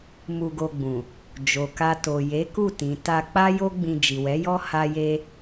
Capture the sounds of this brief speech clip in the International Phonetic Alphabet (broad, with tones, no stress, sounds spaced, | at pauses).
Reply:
m u˧ ɡ o˧ ɡ͡b ũ˨ | d͡ʒ o˨ k a˧ t o˨ j e˨˦ k u˦˨ t ĩ˨ t a˧ k͡p a˦ j o˦ ɡ͡b ĩ˧ d͡ʒ i˨ w ɛ˨˦ j ɔ˦ h a˦ j e˦